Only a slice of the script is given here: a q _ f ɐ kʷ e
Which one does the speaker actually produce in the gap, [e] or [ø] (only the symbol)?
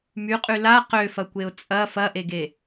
ø